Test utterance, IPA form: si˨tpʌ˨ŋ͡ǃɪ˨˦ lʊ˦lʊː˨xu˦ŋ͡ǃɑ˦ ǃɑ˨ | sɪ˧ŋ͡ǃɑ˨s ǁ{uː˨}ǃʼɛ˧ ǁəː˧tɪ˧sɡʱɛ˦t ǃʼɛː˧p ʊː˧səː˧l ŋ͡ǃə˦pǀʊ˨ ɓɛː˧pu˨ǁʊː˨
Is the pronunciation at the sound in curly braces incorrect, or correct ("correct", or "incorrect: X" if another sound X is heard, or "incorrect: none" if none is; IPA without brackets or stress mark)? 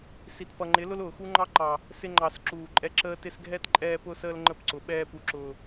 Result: correct